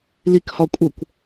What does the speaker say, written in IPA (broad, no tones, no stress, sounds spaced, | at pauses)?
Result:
l i k h ɒ kʷʼ ə kʷ